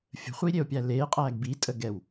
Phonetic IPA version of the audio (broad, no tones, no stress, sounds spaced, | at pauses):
fʲ ə̤ χʷ i ɾʲ e o̯ pʲ æ l eː qʼ æː ɡ b i tʼ ə ɡ ɛ w